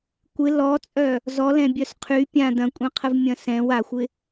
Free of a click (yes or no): yes